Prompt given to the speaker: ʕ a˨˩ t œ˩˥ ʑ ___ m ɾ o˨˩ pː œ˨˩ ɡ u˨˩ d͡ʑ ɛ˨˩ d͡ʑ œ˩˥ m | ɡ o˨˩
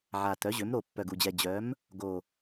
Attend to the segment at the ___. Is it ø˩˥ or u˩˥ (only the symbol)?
ø˩˥